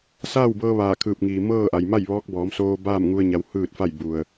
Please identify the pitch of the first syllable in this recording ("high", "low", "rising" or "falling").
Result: falling